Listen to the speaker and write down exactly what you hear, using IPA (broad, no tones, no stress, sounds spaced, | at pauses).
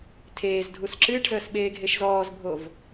tʰ eː z dʱ u s ǁ ɨː ʈ z əː s ɓ eː ɡʱ e ʃ z ɔː z bʱ o v